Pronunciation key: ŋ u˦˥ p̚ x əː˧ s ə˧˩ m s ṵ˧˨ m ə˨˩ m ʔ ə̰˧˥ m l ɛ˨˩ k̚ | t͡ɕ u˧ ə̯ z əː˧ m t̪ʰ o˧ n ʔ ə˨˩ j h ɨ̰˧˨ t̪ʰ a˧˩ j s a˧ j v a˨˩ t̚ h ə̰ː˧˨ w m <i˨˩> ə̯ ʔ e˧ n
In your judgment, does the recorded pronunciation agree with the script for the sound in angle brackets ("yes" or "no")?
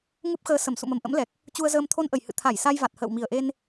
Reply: yes